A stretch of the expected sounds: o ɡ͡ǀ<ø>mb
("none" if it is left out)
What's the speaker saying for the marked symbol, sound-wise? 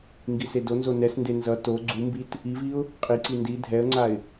u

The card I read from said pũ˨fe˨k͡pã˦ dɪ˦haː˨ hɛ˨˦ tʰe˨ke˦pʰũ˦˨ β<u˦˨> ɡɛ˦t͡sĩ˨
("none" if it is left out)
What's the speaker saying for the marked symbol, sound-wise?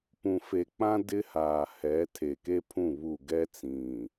u˦˨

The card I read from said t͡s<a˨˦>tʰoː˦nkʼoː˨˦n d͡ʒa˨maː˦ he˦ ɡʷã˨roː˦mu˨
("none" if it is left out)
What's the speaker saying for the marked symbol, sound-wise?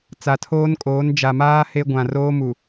a˨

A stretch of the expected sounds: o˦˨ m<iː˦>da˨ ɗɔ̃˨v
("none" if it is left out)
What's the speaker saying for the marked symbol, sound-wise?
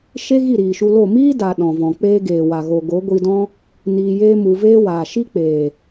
iː˦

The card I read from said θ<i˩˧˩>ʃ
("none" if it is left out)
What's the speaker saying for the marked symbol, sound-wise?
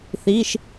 i˩˧˩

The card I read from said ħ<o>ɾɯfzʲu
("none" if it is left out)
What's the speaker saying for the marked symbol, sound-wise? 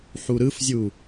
u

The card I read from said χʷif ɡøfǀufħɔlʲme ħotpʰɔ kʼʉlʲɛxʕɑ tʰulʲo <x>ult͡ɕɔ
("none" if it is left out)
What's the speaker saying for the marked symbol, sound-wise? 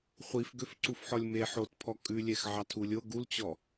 ɡ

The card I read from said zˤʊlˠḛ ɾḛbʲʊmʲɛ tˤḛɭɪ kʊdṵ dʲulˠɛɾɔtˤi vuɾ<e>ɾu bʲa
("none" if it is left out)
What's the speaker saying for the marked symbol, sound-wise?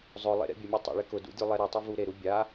e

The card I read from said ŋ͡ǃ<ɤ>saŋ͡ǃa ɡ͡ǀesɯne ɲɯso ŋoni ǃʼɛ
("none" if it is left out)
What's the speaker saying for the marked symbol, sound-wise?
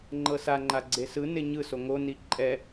ɤ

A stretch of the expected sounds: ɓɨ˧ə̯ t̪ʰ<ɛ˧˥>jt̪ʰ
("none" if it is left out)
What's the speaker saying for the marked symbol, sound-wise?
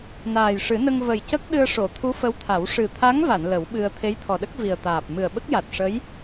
e˧˥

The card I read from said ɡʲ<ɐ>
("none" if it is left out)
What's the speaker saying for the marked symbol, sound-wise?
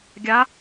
a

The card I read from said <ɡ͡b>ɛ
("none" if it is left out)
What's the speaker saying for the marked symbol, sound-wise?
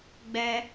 ɡ͡b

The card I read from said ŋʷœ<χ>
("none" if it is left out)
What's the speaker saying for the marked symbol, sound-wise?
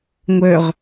ʁ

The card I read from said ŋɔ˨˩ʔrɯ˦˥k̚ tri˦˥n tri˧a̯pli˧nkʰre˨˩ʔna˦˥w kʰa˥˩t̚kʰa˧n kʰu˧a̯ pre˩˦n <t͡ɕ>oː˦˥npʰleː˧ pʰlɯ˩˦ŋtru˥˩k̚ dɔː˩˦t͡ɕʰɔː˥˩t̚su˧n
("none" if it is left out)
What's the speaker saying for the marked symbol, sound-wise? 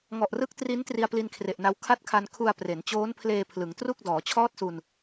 t͡ɕ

